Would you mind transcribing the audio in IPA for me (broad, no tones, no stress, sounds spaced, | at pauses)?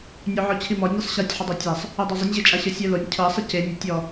nʲ o ʕ ɔ t͡ɕʰ i m ɔ nʲ œ sˤ ɕ a tʲ ħ ə dˤ o tʲ a sˤ | œ dˤ o zˤ ɪ nʲ ʑ e t͡ʃʼ a ɕ ɤ sʲ œ l o nʲ cʰ ɤ sˤ ɪ c e nʲ ʊ tʲ ɔ